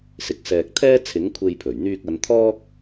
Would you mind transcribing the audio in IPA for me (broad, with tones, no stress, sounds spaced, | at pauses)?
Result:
s ɪ˨ k̚ s ɛː˨ k̚ t̪ʰ ɛː˥ t͡sʰ ɪ˨˥ ŋ kʷʰ e˧ j pʰ ɵ˨˩ ɥ n̪ yː˧ k̚ ɐ˨˧ n t̪ʰ ɔː˥ k̚